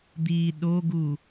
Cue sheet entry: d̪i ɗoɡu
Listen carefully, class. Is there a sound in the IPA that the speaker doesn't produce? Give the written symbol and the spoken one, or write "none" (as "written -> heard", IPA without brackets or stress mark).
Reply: none